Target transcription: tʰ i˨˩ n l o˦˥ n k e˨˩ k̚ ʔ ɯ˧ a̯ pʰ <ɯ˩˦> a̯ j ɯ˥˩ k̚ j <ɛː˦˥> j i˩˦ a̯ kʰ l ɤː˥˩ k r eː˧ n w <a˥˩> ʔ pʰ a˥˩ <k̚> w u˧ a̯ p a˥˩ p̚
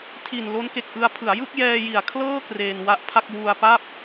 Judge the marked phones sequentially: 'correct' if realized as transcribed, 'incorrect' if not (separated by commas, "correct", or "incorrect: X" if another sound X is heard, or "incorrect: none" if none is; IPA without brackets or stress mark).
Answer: correct, incorrect: ɛː˧, incorrect: a˦˥, correct